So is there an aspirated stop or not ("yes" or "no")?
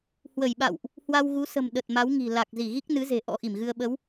no